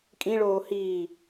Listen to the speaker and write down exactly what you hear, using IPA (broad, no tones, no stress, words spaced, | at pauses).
kʼĩɭoː hiː